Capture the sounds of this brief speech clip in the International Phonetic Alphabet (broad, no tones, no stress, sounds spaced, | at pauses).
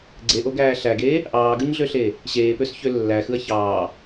ɡ͡ǀ e ʔ o ɡ æː ɬ æ ɡ eː | ʔ ɑː ɡ ɯ ɲ ɮ ø ɬ eː | ɕ eː p ø s ç ø lː æ x ɯ ɐ̯ ç ɑː